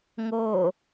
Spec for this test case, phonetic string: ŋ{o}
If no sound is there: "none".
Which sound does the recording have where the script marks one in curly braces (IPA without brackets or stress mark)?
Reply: o